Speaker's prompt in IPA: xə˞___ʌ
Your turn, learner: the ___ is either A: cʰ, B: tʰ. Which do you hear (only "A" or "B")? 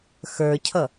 A